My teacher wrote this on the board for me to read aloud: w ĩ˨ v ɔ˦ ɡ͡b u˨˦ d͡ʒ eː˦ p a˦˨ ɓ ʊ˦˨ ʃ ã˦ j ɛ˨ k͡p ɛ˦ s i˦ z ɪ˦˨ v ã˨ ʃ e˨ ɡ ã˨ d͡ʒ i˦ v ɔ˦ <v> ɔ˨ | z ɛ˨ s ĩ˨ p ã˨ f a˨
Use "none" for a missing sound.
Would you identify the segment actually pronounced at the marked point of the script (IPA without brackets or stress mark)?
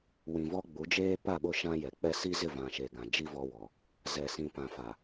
w